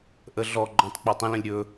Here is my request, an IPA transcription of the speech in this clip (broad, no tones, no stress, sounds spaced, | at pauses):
ʔ ə ɮ ɔ ɡ͡ǃ ɔ̃ tˤ k͡p e tˤ ə̃ l ə̃ lʲ ɾʲ ɵ